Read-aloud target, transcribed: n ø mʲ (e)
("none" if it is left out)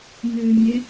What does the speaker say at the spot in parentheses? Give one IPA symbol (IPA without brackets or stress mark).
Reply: ɛ